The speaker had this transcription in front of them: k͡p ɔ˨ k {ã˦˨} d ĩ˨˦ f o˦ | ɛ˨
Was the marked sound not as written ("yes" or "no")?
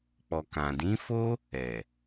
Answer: yes